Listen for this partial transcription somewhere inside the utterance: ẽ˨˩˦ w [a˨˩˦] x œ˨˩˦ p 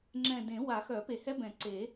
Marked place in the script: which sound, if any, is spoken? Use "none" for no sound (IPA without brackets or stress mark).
a˨˩˦